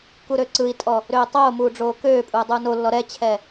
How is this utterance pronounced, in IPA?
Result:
k u ɾ ø ǀ ɯ i̯ tʼ ɔ | ɾ øː tˤ oː m uː ɖ͡ʐ oː k øː pʼ uː dˤ uː n o lː ɔ ɾ ɛ t͡ɕʰ ɛ

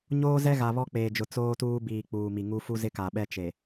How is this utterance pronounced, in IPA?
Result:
ɲ oː˦ z ɛ˦ ɣ a˨ β ɔ˦ k͡p eː˨ d͡ʒ ʊ˨ t͡s oː˦ t uː˦ b iː˨ k͡p uː˨ m i˨ ŋ u˦ f u˦ z ɪ˦ k a˨ ɓ ɛ˦ t͡ʃ e˨

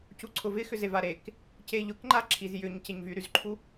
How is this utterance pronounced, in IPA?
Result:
c u ǀʰ ʊ v ɪ x ʏ z e v a ɾ e k | c e ʎ ʊ k ŋ͡ǃ a ǁʰ i z j ʏ ɲ c e ɲ v y ɾ y z ǃʰ u

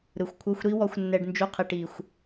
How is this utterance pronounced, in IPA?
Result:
ɾ ɯ˨ xʷ kʷʰ ɤ˧ xʷ ɾ i˦ w ɔ˧ xʷ nː ɛ˧ ɖ n d͡ʒ u˧ qʰ i˨ ʈ i˨ xʷ

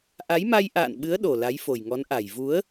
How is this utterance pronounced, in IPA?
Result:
ʔ a˨˦ j m a˧ j ʔ a̰ː˧˨ n ɓ ɨ˨˦ ə̯ ɗ o˨˩ l a˨˦ j f o˨˩ j ŋ ɔ˨˦ n ʔ a˨˩ j v u˨˦ ə̯

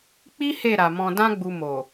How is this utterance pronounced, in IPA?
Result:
k͡p i˦ h e˦˨ ɾ a˨ m ɔ̃˨ d ã˧ ɡ͡b u˨ m o˨

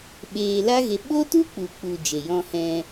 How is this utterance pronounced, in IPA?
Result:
ɓ eː˧ l a˦ ɣ e˧ ɓ o˦ t u˦ k͡p u˨ k͡p u˨ d͡ʒ e˨ j ɔ̃˧ h ɛ̃˧

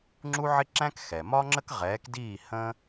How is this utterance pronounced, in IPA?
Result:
ŋ͡ǁ u˥ ʕ ɪ˥ ǁ æ̃˥ k x ɛ˩ m ɒ˥ ŋ͡ǁ ə˥ k ʁ ɛː˨˥ k d iː˥˨ h ə̃ː˥

